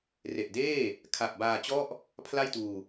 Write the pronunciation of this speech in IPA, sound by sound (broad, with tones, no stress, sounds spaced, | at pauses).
r e˨˩ ʔ d eː˥˩ | kʰ a˨˩ p̚ b aː˧ t͡ɕ ɔ˥˩ ʔ | pʰ l a˥˩ j t uː˧